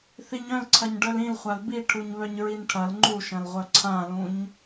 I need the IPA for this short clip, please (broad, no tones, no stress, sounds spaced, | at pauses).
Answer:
θ i ɲ œ̃ l ǀʰ ɐ ɲ ɖ œ l ĩ l χʷ a l b i ʈʰ u ɲ β œ ɲ ɹ i n ʈʰ ɐ l ŋ͡ǃ u ʃ ɐ̃ l ʁʷ œ ǀʰ ã l ũ ɲ